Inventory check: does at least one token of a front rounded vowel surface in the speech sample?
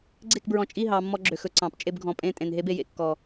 yes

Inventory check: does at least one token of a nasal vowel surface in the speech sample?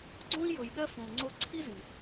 yes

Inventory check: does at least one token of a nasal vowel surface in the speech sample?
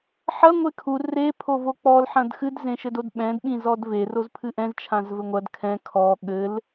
yes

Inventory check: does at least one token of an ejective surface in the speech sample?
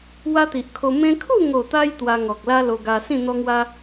no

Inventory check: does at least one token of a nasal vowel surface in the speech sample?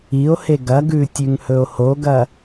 no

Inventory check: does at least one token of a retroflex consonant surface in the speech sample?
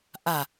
no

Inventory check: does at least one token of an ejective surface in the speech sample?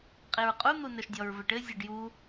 yes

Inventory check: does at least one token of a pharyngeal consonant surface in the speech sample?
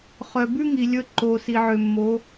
yes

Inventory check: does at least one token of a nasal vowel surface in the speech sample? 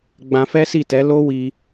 yes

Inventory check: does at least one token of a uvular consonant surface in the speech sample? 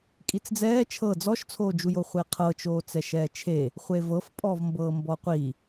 yes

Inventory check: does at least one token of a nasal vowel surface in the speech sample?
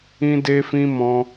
yes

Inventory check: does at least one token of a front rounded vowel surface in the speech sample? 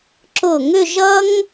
yes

